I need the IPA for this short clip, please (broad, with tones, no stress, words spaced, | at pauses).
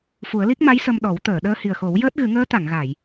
fu˨˩˦ə̯li˦˥k̚ma˧˥j sə˧mɗɔ˨˩˦w t̪əː˨˩˨ɗəː˧hi˨˩ə̯xo˨˩˦w jəː˦˥t̚ɣɨ˨˩˦ŋəː˧˥ t̪a˨˩˨ŋɣa˨˩˨j